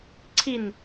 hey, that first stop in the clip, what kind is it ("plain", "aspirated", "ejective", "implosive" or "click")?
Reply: click